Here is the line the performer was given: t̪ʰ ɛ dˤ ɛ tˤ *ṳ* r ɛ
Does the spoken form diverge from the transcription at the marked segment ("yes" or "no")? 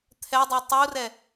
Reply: yes